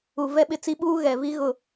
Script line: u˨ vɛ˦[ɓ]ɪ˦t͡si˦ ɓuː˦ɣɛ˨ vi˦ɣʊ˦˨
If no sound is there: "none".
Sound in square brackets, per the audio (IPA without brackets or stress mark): ɓ